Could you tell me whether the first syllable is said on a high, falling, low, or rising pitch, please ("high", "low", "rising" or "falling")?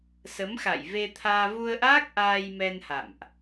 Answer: rising